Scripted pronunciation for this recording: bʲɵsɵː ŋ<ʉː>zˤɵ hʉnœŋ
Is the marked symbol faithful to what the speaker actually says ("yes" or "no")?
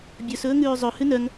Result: yes